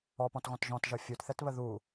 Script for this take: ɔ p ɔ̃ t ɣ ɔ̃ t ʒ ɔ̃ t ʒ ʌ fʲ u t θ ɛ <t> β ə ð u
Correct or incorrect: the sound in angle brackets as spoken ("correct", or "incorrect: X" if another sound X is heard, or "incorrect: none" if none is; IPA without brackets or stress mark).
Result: correct